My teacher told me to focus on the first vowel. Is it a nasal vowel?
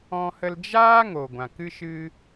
yes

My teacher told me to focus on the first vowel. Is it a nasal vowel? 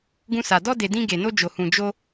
yes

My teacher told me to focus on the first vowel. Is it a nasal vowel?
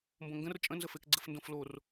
yes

